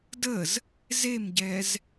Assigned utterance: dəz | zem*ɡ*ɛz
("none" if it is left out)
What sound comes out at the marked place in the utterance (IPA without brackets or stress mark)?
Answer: ɟ